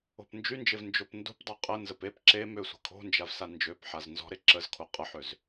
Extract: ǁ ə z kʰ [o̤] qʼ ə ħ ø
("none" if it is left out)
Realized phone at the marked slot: o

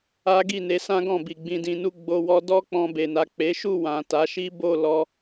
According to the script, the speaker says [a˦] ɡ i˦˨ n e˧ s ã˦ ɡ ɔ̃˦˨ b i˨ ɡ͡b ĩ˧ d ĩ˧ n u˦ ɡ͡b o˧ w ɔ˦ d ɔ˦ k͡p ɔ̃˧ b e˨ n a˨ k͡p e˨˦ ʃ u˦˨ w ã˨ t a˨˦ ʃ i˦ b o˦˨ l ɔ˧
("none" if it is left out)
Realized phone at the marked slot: a˦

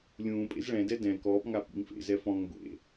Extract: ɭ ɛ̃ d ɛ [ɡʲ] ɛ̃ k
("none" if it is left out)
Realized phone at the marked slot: d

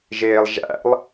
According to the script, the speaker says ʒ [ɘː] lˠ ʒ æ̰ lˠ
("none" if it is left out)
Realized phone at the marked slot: eː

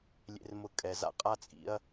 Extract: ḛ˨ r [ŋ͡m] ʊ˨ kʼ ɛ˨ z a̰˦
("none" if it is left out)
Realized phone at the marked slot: m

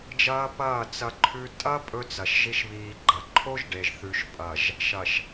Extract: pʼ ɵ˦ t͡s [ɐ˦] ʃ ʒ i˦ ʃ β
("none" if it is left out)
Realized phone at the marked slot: ɐ˨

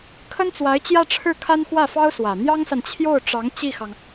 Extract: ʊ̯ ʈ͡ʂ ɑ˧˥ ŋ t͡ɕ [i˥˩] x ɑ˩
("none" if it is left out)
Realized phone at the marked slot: i˥˩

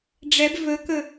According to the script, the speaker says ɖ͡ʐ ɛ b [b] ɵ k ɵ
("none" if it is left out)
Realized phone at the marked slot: v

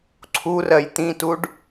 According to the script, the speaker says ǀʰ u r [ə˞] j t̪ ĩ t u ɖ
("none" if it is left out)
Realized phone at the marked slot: ɜ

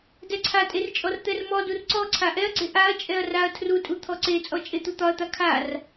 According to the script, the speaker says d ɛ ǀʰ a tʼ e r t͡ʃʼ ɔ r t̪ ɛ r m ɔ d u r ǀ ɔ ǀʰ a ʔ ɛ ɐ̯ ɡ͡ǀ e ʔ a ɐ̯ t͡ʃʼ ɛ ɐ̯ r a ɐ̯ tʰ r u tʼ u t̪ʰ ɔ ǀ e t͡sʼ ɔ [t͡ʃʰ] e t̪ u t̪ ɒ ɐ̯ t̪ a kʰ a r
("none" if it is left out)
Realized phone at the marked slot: t͡ʃʼ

